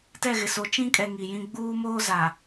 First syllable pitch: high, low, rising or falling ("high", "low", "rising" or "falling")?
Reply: falling